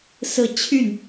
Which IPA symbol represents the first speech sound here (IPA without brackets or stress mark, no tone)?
s